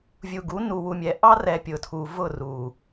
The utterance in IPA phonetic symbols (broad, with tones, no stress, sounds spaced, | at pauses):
vʲ u˨ ɡ u˨˦ n u˨ w u˨ mʲ ɛ˨ ʔ ɑ˦ r ɛ˨ pʲ ʊ˨ tʰ u˨ v ʊ˦˨ r u˨